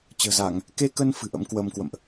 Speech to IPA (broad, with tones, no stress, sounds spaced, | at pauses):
t͡ɕ ə̤ː˨˩ z a˧˩˨ ŋ | k e˧ k ə˧ n f ɨ̤˨˩ ʔ ə̰˧˥ m k w əː˧ m k w ə̰˧˨ m ʔ